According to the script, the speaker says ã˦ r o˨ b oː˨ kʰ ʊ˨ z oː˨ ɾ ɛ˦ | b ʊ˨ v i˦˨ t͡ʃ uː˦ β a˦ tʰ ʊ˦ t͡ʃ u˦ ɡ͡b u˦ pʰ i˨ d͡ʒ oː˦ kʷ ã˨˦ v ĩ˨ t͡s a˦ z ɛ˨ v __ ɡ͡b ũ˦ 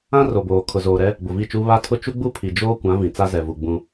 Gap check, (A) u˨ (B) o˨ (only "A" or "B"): A